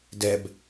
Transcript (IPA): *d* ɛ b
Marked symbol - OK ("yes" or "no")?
yes